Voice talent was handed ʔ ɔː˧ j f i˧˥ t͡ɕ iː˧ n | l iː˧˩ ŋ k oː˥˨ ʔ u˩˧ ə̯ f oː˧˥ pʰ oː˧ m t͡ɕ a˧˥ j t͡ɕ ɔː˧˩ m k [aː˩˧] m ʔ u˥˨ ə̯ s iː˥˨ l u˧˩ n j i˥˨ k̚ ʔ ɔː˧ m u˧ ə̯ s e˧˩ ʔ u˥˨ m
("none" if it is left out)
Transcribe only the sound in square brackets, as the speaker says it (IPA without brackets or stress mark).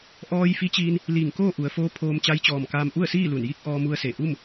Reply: aː˧